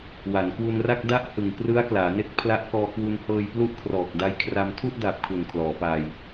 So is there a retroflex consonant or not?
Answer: no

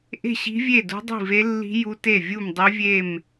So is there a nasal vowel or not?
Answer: no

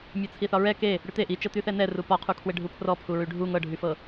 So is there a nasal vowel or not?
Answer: no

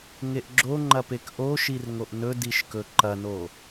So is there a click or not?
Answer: yes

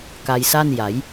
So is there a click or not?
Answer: no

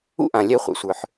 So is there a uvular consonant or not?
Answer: yes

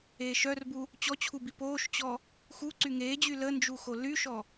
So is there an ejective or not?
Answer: no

